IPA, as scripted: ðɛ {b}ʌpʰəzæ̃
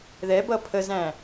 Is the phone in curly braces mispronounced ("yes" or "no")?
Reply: no